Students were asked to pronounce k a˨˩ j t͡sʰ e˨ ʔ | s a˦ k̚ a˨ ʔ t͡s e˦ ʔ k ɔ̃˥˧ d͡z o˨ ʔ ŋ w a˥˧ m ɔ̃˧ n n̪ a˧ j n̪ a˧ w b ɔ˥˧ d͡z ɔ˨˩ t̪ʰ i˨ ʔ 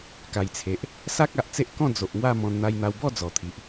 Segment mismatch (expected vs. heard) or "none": none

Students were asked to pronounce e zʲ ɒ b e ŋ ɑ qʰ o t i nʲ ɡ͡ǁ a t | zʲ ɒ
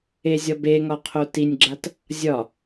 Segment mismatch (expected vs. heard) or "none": ɑ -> ɒ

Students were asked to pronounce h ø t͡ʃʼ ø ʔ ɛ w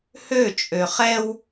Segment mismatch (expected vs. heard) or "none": ʔ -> χ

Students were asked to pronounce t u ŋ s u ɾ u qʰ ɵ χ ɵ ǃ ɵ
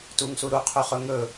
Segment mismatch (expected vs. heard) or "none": ǃ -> ŋ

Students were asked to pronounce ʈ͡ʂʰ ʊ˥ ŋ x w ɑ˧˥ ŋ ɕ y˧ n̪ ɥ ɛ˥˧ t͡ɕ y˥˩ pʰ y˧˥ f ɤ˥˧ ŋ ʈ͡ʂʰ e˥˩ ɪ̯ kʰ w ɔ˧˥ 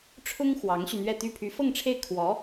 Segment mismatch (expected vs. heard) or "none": t͡ɕ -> t̪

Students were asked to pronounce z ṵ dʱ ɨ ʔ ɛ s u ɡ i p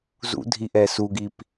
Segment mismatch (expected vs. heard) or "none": ɨ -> i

